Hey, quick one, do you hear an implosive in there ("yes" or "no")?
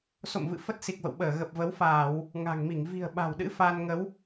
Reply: yes